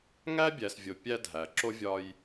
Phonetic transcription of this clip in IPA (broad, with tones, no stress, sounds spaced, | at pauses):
ŋ æ˥ bʲ æ˨ s vʲ o˨ pʲ æ˦ dʱ æ˩ ǁ o˥ vʲ ɒ˦ j